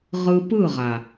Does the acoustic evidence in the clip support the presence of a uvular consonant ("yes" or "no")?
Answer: yes